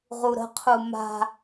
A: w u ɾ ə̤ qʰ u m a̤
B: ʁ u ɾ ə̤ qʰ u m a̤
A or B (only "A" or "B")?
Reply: B